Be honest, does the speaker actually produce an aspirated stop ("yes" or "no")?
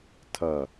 yes